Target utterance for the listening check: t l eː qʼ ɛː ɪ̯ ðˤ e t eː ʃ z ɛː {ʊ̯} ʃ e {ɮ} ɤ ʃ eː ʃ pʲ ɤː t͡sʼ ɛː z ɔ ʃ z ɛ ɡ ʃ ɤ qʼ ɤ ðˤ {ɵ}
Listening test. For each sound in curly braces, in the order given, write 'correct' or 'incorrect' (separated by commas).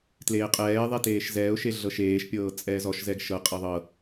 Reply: correct, correct, incorrect